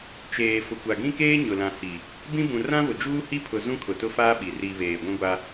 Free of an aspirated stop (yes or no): no